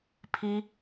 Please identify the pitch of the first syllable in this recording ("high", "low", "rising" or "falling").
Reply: high